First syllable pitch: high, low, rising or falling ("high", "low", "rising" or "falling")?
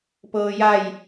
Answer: low